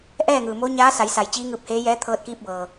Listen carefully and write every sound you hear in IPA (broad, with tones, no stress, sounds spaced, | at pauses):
ʔ ɛː˥˨ ŋ ɯː˩ m o˧˥ ɲ aː˧˥ s a˩˧ j s a˩˧ j t͡ɕ iː˧˥ ŋ ɯː˧ p̚ h eː˧˥ j ɛː˧˥ t̪ʰ ɤː˧ t̚ k iː˧ p̚ b ɤː˩